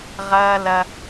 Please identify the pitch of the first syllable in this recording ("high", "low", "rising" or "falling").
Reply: high